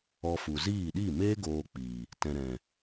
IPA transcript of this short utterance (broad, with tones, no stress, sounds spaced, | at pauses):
ɔ˧ f u˨ z iː˦˨ ɗ i˦˨ m eː˦ ɡ oː˧ k͡p iː˨ | t ɛ̃˨ ɾ ɛ̃˨